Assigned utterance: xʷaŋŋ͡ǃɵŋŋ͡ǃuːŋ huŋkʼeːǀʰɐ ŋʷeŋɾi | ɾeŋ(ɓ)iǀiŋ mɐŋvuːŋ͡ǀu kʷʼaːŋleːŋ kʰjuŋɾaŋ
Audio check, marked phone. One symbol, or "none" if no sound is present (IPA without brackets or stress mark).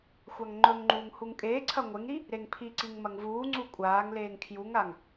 pʰ